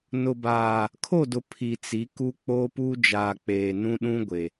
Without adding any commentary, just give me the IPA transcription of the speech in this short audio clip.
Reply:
nʊ˨baː˨ | kʰo˦˨dʊ˨ pʰi˨t͡si˨˦ku˦ k͡po˦pu˦ d͡ʒaː˨k͡peː˨nũ˦ ɗũ˦ɡʷe˨

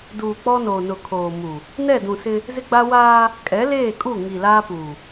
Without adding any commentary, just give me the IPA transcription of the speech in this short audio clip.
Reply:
duː˨k͡pɔ˦noː˨nʊ˨ kʰoː˨ mu˨ | nɛ˦˨dũ˨sɪ˦ | zɪ˦ɡ͡ba˦ waː˦ | kʼɛ˨˦leː˦˨kʼu˦˨ ŋi˨laː˦puː˨

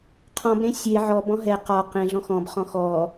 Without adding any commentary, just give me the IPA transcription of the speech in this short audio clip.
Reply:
qʰɔ̃bɾẽ sʲe ʕɔb ɔ̃ɦɛ qɒ qẽɮɔ̃x ɔ̃b χɔ̃xɔ

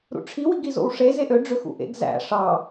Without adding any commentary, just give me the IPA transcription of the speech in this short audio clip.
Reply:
ɾṵʈ͡ʂʰi wiɡizo̰wʂe zeʔø ɖ͡ʐøxṵʔḛɡ zæ̰ ʂɑ

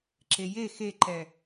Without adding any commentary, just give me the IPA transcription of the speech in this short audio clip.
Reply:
ǁeje xeǃɛ

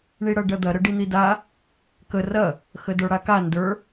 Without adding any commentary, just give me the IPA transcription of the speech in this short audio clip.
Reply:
ɳiɽɐɖɐd̪ɐ ɾəɖin̪ida | kə rɐ | xədə˞ɽaka ndə˞

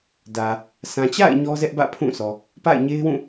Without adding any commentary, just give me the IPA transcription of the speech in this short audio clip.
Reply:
dä˨ | sã˨t͡ɕa̰˦˨ɪ̯ ɲɔ˦zɛ˦ʔbä̰˦˨ pʰũ˦˨ sɔ˨ | pa̰˦˨ɪ̯ɲe˦ɪ̯wũ˦˨

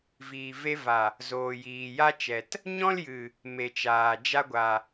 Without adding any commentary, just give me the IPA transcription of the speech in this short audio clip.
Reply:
viː˨ve˧va˨ | zoː˨jiː˨ja˦t͡ʃɛ˨t | ɲɔ̃˦ljɨ˨ | me˨t͡ʃaː˨ d͡ʒa˦ɡʷa˨

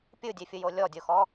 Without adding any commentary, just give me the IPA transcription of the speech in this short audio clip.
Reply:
pʲɯdʲefʲɯjo lʲɔdʲoxɔ

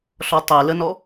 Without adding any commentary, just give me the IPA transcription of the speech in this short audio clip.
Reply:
ɬɔtˤɛlənɔ

